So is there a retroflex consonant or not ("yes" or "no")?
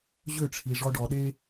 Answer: yes